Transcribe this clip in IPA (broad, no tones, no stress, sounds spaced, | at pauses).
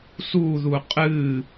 s u ð u qʼ ɨ